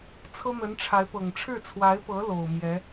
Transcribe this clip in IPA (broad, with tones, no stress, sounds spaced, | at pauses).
t͡sʰ ɤ˥ n̪ ə˧˥ n ʈ͡ʂʰ a˧˥ ɪ̯ p ɤ˨˩ ŋ ʈ͡ʂʰ ɻ̩˥˩ t͡sʰ w a˧˥ ɪ̯ p ɤ˧˥ l o˨˩ ʊ̯ m j ɛ˧˥